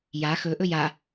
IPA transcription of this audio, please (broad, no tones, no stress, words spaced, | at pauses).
ja xɵʔɵj a